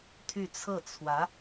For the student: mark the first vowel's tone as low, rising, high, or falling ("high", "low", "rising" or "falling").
falling